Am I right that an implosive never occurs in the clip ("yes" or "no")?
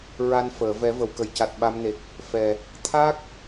no